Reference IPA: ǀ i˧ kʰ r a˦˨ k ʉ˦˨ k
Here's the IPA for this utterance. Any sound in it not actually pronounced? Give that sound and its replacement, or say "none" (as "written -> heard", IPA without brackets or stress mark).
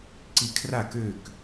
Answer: ʉ˦˨ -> ø˦˨